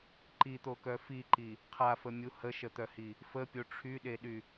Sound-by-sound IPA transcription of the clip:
ǃit̪okœ fiǃi | qʰafəmʲu həʃət̪œhi | fəpʲo ʈ͡ʂʰyɗeɗy

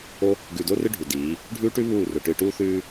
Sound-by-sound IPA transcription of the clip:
o˦ | ɡʉ˨do˦rɨ˦ ɖʱu˨diː˨˦ | ɖʱʉː˦ʈʉ˦ βuː˦˨rɵ˨ ʈɨ˨ʈuː˦θʉː˦

